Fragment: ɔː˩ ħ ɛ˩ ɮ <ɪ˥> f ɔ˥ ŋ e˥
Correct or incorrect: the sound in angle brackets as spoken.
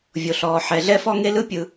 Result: incorrect: ɛ˥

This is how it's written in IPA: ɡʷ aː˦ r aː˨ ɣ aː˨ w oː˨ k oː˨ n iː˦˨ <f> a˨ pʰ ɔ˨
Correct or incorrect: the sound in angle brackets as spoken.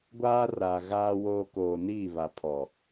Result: incorrect: β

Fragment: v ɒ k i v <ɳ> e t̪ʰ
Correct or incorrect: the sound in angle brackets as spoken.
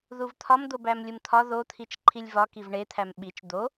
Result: correct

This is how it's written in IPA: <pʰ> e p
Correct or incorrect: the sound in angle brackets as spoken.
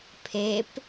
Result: correct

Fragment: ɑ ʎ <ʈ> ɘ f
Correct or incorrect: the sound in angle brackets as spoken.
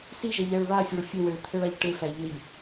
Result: correct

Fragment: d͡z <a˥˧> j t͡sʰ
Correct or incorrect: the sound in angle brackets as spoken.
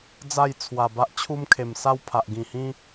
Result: correct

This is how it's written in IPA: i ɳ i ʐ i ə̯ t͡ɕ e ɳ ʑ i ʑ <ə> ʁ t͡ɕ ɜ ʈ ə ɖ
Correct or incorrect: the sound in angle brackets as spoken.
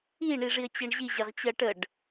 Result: correct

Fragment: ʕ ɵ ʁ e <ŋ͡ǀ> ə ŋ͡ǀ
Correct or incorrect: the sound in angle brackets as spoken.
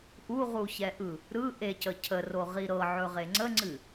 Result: correct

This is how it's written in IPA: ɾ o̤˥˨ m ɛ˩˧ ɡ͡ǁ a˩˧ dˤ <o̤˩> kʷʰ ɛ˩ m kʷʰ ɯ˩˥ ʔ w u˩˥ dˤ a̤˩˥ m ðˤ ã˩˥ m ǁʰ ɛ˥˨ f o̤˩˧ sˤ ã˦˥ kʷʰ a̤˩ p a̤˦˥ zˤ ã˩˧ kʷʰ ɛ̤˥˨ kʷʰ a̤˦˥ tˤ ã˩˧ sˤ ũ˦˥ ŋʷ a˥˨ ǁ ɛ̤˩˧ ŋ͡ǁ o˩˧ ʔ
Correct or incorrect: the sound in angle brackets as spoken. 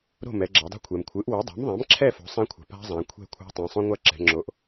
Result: incorrect: o̤˥˨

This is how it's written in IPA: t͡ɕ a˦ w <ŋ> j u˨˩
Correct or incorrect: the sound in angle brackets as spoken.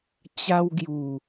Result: incorrect: ɡ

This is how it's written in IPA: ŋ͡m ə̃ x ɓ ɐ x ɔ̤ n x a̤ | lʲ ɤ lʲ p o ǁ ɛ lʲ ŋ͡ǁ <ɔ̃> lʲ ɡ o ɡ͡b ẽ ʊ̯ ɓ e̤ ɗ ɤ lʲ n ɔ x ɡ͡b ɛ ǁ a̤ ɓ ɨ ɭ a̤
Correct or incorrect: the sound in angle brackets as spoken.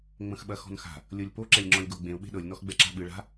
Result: correct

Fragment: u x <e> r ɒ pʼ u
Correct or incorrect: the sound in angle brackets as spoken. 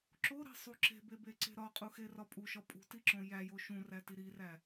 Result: correct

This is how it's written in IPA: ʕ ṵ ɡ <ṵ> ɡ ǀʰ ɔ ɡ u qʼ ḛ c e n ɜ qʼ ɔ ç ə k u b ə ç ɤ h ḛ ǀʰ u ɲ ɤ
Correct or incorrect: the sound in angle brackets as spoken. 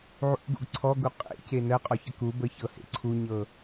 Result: correct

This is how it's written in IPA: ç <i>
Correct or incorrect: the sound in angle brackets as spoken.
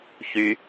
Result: incorrect: y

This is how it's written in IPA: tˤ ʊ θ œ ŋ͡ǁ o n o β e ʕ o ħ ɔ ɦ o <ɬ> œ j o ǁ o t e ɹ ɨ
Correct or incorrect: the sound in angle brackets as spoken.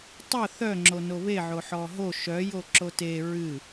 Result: incorrect: ʃ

